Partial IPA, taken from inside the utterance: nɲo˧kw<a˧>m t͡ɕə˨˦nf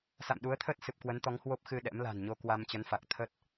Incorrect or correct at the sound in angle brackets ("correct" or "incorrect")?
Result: correct